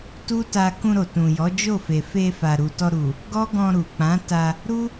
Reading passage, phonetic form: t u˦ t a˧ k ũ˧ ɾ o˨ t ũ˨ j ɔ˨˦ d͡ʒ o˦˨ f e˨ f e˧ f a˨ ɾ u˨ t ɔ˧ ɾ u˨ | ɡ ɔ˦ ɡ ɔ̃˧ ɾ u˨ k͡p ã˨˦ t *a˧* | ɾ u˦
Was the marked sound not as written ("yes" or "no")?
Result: no